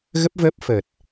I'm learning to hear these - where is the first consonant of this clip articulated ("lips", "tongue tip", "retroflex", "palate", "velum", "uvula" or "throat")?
velum